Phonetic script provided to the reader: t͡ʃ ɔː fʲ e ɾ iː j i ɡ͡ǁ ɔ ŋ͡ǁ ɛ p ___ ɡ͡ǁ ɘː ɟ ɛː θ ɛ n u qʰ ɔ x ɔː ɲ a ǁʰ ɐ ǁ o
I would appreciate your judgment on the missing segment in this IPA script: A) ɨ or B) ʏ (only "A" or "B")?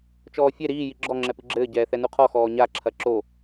A